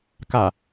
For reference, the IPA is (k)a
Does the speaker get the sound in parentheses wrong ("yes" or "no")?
no